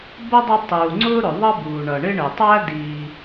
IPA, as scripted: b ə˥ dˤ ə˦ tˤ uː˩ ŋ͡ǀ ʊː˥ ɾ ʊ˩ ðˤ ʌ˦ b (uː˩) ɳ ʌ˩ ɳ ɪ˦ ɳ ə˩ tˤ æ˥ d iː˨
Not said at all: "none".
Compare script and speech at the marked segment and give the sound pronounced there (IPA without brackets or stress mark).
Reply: uː˩